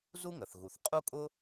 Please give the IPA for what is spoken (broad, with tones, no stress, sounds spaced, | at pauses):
z u˥ ŋ ə˩ θ ɣ u˩ θ qʼ u˥ kʼ ʊ˥